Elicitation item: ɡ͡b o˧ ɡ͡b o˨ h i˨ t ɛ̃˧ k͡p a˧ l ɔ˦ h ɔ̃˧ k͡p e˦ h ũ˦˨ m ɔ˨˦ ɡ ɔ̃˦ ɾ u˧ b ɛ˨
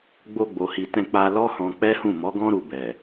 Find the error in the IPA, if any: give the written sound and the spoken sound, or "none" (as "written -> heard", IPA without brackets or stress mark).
e˦ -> ɛ˦